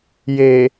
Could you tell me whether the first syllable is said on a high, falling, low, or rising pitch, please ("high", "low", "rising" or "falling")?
low